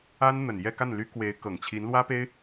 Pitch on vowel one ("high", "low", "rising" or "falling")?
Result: high